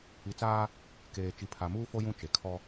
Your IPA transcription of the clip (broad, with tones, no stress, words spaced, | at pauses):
i˨t͡saː˦ | keː˨ t͡ʃi˨pʰa˨muː˦fo˦ jũ˦t͡ʃe˨kʰɔ˦